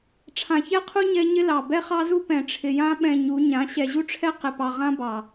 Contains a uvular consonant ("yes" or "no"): yes